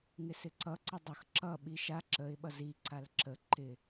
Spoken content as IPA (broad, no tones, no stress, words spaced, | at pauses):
ŋɪsɪǀʌ ǀədˤʌx ǁʌ ɓiʃa ǁəɪ̯ ɓʌzi ǀalǁə ǃɪ